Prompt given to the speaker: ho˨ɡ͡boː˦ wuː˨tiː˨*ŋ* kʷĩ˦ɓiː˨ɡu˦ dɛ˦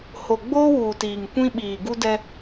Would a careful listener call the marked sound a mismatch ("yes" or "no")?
no